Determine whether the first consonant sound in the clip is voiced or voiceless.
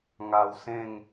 voiced